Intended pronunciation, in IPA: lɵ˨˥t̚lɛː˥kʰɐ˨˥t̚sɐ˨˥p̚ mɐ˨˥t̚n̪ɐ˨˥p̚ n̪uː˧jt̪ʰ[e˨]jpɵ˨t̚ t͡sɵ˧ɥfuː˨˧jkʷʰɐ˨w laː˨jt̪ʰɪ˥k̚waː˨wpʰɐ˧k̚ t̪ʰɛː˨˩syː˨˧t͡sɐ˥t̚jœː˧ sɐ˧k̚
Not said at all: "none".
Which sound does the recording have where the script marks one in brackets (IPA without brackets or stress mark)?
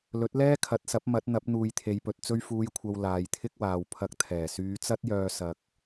e˨˧